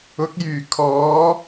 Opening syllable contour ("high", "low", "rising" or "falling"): rising